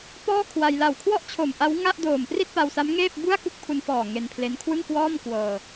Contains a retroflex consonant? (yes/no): no